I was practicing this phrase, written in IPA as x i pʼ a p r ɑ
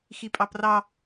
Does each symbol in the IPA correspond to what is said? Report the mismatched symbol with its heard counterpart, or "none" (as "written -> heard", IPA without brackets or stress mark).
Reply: a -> ɑ